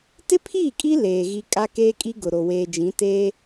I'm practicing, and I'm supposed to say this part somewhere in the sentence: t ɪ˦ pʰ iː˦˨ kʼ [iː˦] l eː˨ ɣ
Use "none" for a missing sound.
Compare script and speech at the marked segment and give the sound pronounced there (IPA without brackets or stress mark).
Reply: i˦